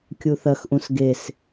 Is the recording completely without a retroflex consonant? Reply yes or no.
yes